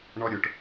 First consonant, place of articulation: retroflex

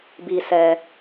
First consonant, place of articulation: labial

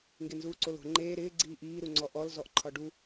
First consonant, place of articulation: velar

